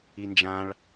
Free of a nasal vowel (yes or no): no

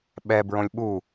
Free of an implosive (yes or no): no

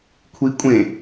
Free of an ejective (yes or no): no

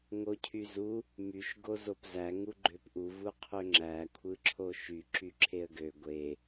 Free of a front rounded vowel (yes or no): no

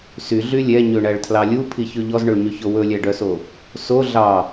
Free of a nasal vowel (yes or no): yes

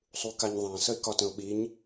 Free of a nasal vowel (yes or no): no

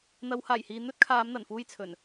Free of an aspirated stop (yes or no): no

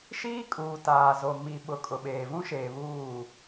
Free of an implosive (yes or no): no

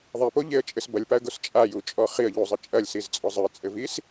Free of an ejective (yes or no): no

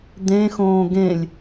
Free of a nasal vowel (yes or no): no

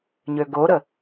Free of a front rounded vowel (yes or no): no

